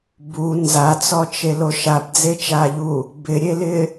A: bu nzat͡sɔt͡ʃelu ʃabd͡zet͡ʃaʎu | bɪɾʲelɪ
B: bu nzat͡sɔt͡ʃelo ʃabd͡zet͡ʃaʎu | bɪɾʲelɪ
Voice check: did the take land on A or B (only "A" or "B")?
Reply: B